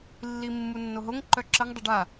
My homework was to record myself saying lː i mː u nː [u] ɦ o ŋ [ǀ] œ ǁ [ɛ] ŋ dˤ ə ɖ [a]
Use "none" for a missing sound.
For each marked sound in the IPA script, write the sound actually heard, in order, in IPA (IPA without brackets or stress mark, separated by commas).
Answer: o, ǃ, ə, a